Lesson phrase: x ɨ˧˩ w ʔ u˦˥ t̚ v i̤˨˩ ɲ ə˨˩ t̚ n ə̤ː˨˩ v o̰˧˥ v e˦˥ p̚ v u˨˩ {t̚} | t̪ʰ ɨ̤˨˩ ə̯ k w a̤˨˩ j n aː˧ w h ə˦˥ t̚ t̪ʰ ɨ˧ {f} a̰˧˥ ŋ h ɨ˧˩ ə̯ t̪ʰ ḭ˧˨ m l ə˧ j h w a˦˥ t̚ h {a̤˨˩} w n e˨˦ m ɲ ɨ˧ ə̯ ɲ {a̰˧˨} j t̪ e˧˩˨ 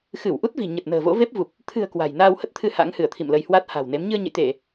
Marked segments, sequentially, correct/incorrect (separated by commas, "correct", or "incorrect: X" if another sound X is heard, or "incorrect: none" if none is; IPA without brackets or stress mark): incorrect: p̚, incorrect: h, correct, incorrect: ə̰˧˨